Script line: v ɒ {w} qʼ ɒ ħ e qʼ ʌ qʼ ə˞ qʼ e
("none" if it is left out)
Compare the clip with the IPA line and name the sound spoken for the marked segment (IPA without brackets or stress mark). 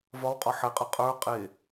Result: w